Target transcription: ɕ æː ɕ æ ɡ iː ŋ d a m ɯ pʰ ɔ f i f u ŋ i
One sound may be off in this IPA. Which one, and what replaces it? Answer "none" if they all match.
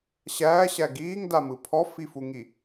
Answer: none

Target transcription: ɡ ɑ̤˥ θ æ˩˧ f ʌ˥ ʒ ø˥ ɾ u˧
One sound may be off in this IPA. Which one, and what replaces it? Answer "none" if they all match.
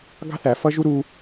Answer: ø˥ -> u˥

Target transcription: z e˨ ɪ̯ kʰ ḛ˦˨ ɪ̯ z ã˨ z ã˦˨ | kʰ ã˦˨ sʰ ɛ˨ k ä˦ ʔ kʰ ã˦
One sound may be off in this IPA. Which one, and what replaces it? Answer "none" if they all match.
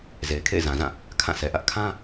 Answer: k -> ʔ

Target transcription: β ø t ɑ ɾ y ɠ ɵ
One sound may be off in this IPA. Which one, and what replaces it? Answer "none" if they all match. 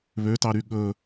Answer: none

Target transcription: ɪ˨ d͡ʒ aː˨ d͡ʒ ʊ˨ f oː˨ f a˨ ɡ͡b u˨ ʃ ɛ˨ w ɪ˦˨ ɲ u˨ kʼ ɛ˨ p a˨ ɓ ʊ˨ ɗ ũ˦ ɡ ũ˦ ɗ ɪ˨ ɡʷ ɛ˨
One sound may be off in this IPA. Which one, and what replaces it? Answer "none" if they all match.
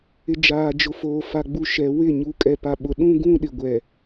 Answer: none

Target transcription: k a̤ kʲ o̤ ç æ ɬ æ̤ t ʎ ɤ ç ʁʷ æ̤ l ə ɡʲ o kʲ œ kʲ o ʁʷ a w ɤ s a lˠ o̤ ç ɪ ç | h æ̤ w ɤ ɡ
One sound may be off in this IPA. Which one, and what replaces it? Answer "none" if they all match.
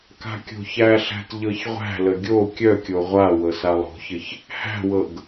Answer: none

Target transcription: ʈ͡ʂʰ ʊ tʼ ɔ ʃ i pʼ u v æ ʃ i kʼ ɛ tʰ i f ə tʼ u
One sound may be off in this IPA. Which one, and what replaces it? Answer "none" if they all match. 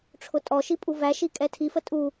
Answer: none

